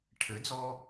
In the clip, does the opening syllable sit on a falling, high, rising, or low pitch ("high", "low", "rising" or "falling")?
rising